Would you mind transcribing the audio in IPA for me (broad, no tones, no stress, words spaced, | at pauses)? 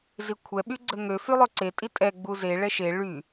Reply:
zikʷʰɛ ɓyɡ͡ǀəŋø fylˠøǀe tʼitʼɛ ɡ͡buze ɭɛʃe ɭy